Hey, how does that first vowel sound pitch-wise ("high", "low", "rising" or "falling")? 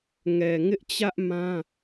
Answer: low